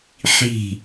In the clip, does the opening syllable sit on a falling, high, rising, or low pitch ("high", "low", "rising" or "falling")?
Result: falling